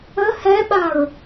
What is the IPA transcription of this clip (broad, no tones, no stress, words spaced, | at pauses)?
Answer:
ə hɛɓaɹ